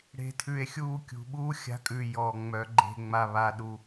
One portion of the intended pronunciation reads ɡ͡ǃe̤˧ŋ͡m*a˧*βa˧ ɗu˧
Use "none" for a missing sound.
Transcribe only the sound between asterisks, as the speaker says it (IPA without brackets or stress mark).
a˧